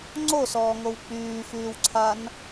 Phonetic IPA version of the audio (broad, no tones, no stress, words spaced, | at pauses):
ŋ͡ǀosɔːŋow k͡pyːfyːwǀʰan